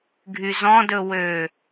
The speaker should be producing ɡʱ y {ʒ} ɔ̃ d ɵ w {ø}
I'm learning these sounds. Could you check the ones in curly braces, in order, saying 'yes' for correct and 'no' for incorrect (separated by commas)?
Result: no, yes